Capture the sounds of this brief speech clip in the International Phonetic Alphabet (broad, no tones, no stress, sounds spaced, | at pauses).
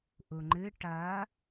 ʔ u ŋ͡ǃ ɨ ʈ ɐ